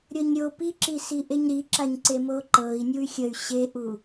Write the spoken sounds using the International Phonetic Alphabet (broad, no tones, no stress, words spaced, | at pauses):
ɾʲɤɲɾʲo piǁisi ʔeɲɾiǁaɲ ǀemoǃɤi̯ nʲuy̯xʲəy̯ ɕeʔu